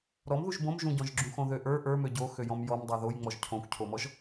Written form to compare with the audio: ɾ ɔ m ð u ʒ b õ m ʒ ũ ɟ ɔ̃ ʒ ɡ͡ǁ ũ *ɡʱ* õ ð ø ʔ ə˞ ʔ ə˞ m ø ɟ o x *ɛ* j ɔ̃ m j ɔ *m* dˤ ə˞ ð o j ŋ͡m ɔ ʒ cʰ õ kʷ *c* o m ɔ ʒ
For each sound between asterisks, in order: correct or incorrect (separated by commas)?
incorrect, incorrect, correct, incorrect